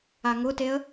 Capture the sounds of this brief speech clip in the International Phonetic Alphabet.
aŋʊteə̯

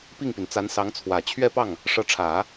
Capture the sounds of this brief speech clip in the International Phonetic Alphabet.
pi˥˩ŋpy˩n t͡sa˧˥nsɑ˧˥ŋt͡sʰwä˨˩ t͡ɕʰɥɛ˥˧pɑ˥˩ŋ | ʂɤ˧˥ʈ͡ʂʰä˨˩˦

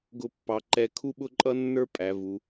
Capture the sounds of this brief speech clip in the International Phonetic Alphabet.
ɡʊ˧˩pːɑ˩˧ǃɛ˧ kʰu˥ɓʊ˥ǃʼʌ˥nːə˞˥ pʼæ˩˧vu˩˧

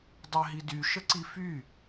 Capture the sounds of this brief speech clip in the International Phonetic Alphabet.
dˤœɦidy ʃəǀify

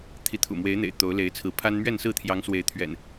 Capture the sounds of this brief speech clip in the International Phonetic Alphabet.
t̪ʰi˨˦t̪ʰṵ˨˩mwe˨˦ɪ̯n̪ḛ˨˩ɪ̯ t̪o˨˦ʊ̯le˨˦ɪ̯t͡sʰɹ̩˨˦ pʰa˦n mɥɛ˥˨nsɹ̩˥˨t̪ʰjɑ˨˦ŋswe˨˦ɪ̯ t̪ʰɥɛ̰˨˩n

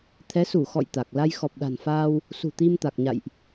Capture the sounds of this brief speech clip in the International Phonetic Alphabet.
t̪ʰɛ˨˦su˧˩xɔ̰˧˨j t̪a˨˩k̚ la˧j xɔ˨˩p̚ɗa̤˨˩nfaː˧w | sṳ˨˩t̪i˧mt̪a˨˩k̚ɲa̰˧˨jʔ

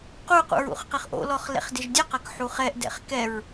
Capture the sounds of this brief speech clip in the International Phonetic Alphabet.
quqṵɹṵχqɪχ ʔo̰lɔχ lɛ̰χdɪʒdʲɵqɐk ħuχɛʔ dɛ̰χkɛɹ

